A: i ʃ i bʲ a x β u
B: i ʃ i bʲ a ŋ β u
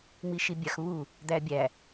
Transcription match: A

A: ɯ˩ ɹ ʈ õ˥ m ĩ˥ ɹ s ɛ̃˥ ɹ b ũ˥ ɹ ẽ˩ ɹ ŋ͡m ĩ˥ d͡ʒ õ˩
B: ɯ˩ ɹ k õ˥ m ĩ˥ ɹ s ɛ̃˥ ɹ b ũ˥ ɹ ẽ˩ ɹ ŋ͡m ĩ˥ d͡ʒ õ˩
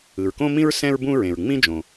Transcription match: B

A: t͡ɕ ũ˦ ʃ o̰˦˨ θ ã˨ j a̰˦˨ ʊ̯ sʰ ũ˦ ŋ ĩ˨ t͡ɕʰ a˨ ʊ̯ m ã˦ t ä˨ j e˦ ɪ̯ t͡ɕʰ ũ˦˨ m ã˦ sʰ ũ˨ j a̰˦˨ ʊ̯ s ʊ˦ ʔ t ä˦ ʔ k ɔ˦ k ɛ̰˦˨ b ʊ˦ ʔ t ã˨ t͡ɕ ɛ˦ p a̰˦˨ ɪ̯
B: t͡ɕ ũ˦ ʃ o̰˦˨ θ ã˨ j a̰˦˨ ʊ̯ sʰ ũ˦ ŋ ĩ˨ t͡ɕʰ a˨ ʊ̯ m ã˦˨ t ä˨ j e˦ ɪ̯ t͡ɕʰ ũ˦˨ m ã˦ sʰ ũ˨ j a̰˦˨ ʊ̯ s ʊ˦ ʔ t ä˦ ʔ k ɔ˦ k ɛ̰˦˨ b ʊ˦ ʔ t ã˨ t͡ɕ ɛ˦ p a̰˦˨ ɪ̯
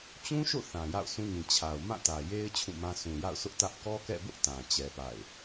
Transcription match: B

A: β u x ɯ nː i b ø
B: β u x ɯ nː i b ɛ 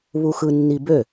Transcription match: A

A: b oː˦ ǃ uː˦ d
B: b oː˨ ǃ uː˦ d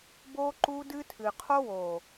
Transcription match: A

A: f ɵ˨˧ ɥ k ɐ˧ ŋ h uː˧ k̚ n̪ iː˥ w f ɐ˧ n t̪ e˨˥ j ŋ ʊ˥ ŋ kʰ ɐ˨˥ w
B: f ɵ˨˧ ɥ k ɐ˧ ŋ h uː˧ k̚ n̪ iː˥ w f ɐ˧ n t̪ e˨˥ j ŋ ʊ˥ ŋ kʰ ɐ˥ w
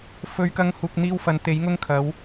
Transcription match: A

